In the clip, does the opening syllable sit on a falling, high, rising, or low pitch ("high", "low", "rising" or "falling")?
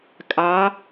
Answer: rising